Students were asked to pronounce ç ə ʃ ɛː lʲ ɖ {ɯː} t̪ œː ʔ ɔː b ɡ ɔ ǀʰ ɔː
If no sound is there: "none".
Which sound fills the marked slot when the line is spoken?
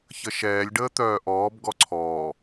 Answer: əː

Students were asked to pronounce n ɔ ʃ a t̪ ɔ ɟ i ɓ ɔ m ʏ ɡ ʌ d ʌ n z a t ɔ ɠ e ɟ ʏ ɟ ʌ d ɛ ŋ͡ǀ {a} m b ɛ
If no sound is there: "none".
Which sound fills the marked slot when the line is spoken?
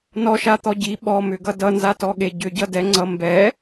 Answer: ʌ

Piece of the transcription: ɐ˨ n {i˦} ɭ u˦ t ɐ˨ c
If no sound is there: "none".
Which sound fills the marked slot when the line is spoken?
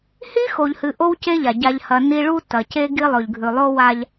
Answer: i˦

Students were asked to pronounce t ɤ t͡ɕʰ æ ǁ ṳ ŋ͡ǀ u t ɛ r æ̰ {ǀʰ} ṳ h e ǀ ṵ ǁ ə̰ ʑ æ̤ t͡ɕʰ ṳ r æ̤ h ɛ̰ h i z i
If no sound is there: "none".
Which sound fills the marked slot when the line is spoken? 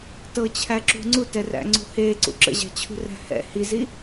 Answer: ŋ͡ǀ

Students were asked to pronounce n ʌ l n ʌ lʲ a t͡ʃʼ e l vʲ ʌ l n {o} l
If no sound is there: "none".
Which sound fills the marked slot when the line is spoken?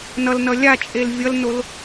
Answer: o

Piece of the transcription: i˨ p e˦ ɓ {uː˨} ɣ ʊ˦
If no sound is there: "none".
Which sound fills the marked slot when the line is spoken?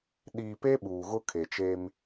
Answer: uː˨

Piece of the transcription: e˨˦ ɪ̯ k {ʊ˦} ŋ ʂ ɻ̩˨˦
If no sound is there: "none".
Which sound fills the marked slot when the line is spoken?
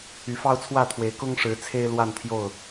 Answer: ʊ˦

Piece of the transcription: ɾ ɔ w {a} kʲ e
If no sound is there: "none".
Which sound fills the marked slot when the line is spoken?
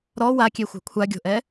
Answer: a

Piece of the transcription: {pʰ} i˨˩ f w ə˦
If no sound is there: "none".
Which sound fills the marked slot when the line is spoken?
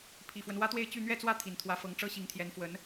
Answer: pʰ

